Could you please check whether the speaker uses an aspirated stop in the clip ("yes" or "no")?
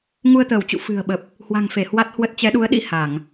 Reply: no